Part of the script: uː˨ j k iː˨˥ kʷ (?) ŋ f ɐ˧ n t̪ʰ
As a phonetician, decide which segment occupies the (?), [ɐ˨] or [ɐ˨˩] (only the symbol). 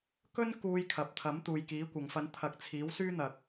ɐ˨